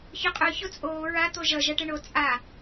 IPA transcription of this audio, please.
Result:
ç œ qʼ œ ç o t͡sʼ oː ɹ a t̪ o ʒ ʌ ʒ ʌ ʈ ə ɳ o t͡sʼ a

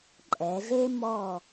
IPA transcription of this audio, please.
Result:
ǃʼ ɛ˩˧ z e˥ m ɔ˧˩

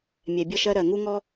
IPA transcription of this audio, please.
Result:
mʲ ɛ˨ bʲ ʌ˧ ʃ ɜ˧ ɾ ɜ˨ ŋ u˦ ŋ ɔ˦

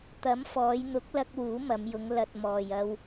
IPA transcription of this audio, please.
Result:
t̪ ɐ˨˥ m f ɔː˨˧ j n̪ ʊ˨˥ k̚ l ɐ˧ k̚ w uː˨˥ m ɐ˨˧ m j ʊ˨˧ ŋ l ɐ˨ t̚ m ɔː˨ j ɐ˧ w

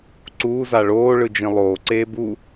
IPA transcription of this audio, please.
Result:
ǀ uː z a ɭ oː ɭ ɯ d͡ʒ ĩ lˠ oː ǀ eː b u

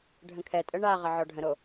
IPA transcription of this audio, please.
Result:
ɖʱ ə̃ kʰ ɛ tʼ ə ɳ a ʁ ə ʕ ɔ ɖʱ ə̃ ɾ o

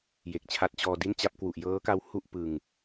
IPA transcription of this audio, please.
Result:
j e˨˩ k̚ t͡ɕʰ a˦˥ t̚ t͡ɕ ɔː˧ d i˥˩ n t͡ɕ a˦˥ p̚ k w u˨˩ ʔ j ɤː˦˥ k a˦˥ w h u˥˩ ʔ p ɯ˧ ŋ

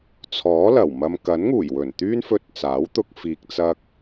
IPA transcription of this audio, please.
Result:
t͡sʰ ɔː˨˥ l ɐ˨˩ w m ɐ˧ m k ɐ˨˥ n ŋ uː˨˩ j w ɵ˨˩ n t̪ yː˥ n f ɵ˧ t̚ t͡s aː˨˥ w t̪ ʊ˧ k̚ f iː˨ k̚ t͡s ɐ˧ k̚

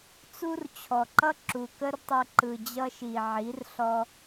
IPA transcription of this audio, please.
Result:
t͡s u˥ r t͡ɕʰ ɔ˨˩ ǃ ʌ˥ ǁ u˨˩ k ə˥ r tˤ ɘ˧ ǃ ɯ˨˩ d͡ʑ ʌ˥ ʃ i˨˩ ʕ i˩˥ r ɬ ɔ˧

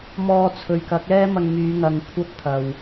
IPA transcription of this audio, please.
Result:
m ɔː˧ t͡sʰ ɵ˨ ɥ k ɐ˨˥ k̚ ɛː˥ m ɐ˧ ŋ m yː˨˧ ŋ ɐ˨ ŋ kʷʰ ɐ˥ p̚ t̪ʰ ɐ˨ w

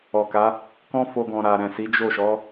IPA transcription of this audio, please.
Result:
ɔ˨ k a˨˦ | k ɔ̃˦ f o˧ ɡ ɔ̃˨ ɾ a˨ ɾ ɛ̃˨ s i˨˦ d͡ʒ o˦˨ ʃ ɔ˨˦

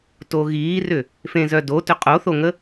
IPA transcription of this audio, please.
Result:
t o ɣ iː r ʏ | f ẽ z œ d o t ʏ qʼ o θ o ŋ ə

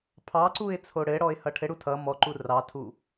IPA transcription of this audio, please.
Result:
pʰ ɑ ǀ u ɪ̯ t͡sʰ o ɽ ɘ ɽ ɔ ɪ̯ h ʌ ʈʰ ɘ ɽ u tʰ ʌ m ɔ ǃ u r ɑ tʰ u

